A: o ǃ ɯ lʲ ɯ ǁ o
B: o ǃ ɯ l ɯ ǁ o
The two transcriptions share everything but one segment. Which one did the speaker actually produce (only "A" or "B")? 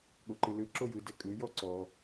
B